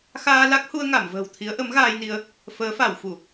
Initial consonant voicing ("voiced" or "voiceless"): voiceless